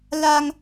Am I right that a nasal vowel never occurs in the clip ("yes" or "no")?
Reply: yes